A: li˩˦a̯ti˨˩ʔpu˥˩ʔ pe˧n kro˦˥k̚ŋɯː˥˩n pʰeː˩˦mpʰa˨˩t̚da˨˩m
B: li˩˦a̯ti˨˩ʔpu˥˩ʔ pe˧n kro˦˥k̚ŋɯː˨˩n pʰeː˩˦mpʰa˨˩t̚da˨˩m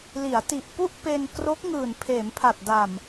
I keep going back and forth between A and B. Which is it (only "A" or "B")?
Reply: B